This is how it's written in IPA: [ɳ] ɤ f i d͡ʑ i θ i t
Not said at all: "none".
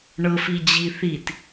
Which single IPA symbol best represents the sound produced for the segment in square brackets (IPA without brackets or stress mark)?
ɳ